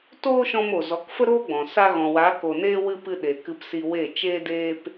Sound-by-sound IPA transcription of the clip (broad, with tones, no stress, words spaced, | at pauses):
toː˦ʃɔ̃˧m o˨zɔ˨˦kfə˦ ɾoː˦ɡ͡bɔ̃˨ sa˧ɣɔ̃˨wa˨˦ ko˧neː˦wɨ˦ pɨ˧ ɗe˨ kɨ˧psi˧we˦˨ t͡ʃeː˦deː˦p